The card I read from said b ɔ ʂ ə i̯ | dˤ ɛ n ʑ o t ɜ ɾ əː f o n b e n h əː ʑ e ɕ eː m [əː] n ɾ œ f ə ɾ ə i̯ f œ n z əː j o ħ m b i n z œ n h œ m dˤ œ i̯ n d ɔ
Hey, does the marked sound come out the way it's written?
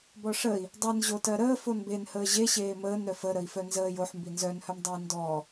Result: yes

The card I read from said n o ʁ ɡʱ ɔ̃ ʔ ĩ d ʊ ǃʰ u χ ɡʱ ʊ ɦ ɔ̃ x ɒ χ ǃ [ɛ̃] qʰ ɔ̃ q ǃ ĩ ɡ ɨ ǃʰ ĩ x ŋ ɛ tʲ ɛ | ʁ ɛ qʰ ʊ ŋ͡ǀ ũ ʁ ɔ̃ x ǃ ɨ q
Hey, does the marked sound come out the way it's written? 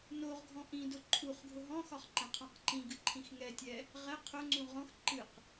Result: yes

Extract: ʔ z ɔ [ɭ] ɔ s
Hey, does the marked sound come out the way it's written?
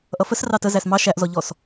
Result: no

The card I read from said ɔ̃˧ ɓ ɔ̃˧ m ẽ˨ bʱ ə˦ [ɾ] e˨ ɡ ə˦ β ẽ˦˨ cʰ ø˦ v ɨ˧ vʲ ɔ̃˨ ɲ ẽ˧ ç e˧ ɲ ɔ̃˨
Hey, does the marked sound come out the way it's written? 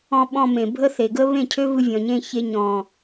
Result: no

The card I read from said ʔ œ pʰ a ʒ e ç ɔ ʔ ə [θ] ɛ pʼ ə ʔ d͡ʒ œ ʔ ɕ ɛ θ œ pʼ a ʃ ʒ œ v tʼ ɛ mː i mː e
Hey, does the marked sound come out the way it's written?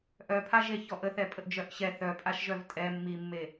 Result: yes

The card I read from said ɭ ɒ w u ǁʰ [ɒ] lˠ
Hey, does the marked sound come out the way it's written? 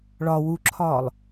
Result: no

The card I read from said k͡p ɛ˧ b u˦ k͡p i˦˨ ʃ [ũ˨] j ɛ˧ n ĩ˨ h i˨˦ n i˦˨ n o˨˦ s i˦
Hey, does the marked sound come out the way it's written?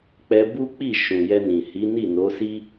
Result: yes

